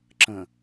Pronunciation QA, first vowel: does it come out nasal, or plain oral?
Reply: nasal